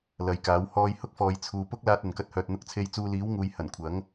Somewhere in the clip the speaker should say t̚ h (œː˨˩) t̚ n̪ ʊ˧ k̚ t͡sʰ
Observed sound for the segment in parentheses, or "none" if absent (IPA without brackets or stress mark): œː˧